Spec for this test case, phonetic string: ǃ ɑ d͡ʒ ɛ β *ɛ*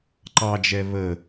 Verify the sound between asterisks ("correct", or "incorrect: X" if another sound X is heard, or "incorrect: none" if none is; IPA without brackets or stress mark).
incorrect: ə